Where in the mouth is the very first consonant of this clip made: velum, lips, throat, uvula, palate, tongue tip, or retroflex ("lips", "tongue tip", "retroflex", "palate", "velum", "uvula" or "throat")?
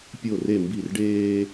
lips